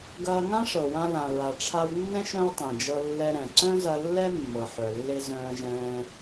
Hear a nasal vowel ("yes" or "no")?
yes